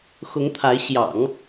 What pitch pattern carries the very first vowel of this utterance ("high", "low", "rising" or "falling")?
rising